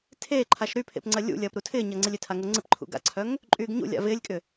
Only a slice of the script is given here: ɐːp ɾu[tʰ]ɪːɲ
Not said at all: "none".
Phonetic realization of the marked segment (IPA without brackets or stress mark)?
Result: tʰ